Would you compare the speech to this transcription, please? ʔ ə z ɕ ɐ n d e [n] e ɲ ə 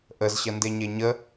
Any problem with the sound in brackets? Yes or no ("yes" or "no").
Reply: yes